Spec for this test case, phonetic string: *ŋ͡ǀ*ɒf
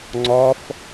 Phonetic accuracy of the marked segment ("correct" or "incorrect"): correct